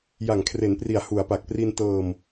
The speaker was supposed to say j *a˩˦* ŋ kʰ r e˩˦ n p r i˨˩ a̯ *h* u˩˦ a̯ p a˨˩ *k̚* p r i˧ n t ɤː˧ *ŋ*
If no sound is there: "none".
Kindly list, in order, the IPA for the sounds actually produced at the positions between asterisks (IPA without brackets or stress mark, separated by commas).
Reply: a˨˩, h, k̚, m